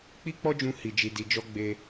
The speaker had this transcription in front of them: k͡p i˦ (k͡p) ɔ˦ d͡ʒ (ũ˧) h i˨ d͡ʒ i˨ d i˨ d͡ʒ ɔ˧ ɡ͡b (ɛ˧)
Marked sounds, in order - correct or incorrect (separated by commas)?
correct, correct, incorrect